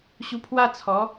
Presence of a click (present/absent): absent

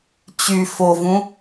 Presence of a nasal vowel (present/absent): present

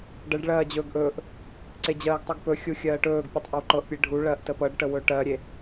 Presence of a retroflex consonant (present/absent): present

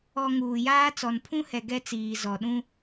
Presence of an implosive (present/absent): present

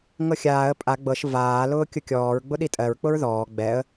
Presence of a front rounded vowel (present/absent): absent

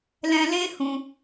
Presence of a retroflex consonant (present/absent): absent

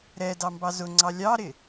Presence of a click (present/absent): present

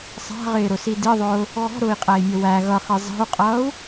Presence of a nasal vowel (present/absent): absent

